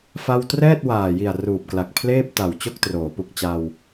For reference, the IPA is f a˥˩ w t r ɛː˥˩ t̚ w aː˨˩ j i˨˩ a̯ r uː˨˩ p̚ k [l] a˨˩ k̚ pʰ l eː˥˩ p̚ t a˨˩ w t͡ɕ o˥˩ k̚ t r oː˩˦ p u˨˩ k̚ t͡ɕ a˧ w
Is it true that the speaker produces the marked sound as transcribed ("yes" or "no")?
yes